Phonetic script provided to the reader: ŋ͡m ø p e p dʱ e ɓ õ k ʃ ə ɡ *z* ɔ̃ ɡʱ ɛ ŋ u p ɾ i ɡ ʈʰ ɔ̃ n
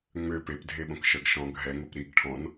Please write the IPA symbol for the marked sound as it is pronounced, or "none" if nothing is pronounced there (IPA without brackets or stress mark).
ʃ